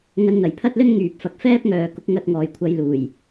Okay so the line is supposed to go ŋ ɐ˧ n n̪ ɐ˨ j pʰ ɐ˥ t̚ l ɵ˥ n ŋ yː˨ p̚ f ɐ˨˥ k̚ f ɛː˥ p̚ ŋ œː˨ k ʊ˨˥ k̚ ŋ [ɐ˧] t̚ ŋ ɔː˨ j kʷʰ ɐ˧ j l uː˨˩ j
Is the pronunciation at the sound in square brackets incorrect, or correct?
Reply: correct